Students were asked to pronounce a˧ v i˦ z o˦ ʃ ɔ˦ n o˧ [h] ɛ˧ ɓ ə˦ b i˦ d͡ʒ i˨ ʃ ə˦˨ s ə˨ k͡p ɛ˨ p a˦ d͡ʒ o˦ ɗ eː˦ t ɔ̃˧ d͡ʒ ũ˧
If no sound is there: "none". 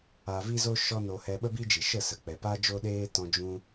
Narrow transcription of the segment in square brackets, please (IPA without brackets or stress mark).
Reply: h